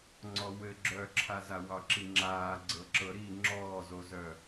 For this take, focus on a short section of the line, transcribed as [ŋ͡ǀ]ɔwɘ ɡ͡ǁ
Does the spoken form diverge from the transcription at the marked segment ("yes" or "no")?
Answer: no